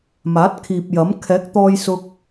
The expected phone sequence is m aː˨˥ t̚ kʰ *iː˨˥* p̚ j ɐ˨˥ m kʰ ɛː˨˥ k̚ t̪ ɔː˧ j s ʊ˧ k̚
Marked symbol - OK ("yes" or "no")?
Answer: no